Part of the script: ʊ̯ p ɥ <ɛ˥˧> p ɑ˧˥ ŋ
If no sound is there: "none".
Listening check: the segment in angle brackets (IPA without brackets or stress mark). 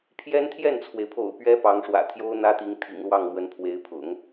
ɛ˥